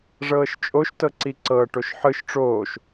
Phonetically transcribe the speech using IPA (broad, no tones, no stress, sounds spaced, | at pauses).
ʐ ɤː ʃ t͡ʃʼ o ʃ t ɤ ǀ i ǀ ɤ ʈ o ʃ ħ ɯ ʃ ʈ͡ʂ oː ʃ